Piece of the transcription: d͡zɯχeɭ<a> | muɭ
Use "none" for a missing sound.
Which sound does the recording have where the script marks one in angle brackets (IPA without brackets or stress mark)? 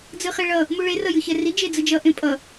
ʌ